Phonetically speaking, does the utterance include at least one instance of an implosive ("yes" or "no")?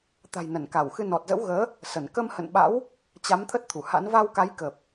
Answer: yes